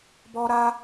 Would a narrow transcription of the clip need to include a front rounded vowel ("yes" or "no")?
no